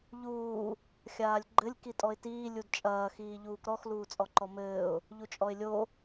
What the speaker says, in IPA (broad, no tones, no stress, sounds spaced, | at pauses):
ʎ uː | xʲ aː lʲ ɡ͡ǃ ɘ lʲ k i tʼ ɔ ɪ̯ t iː lʲ u d t͡ʃʼ ɐː x iː ʎ uː k ɾ ɔ x l uː t͡sʼ ɔ ǃ ɔ m ɘː ʊ̯ | ʎ u t͡ʃʼ ɔ ɪ̯ lʲ o